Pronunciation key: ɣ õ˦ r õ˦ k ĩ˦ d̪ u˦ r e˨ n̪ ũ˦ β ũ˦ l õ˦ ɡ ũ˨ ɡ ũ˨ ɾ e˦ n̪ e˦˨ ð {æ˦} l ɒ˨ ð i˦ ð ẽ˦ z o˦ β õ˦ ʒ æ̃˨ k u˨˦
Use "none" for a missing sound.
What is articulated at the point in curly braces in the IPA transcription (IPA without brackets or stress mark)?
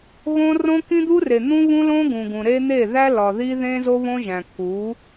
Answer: æ˦